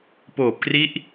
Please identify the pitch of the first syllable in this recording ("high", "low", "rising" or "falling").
low